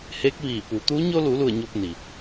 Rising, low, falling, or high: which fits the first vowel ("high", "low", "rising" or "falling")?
rising